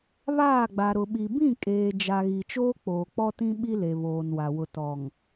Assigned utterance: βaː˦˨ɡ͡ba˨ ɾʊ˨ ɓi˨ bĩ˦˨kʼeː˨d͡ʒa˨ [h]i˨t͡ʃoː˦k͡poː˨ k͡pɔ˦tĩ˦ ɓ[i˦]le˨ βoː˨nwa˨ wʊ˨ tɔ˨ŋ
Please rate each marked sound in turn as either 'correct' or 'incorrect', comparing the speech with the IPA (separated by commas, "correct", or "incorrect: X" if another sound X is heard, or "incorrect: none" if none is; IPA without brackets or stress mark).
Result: incorrect: ɣ, correct